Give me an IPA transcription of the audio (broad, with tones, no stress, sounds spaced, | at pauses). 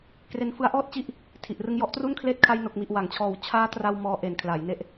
k r e˧ n f ɯ˦˥ a̯ ʔ ɔː˥˩ t̚ t͡ɕ i˦˥ ʔ | tʰ i˨˩ ʔ r ɯ˧ ŋ j ɔ˦˥ ʔ t r u˥˩ n kʰ l eː˦˥ t̚ kʰ a˧ j n o˨˩ k̚ m i˨˩ ʔ w a˩˦ ŋ t͡ɕʰ ɔː˨˩ w t͡ɕʰ aː˦˥ t r a˧ w m ɔː˦˥ ʔ e˨˩ n kʰ l aː˩˦ j n e˦˥ ʔ